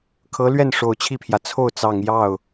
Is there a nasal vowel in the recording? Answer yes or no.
no